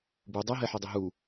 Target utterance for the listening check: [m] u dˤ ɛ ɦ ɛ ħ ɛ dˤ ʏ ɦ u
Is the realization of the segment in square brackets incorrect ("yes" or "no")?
yes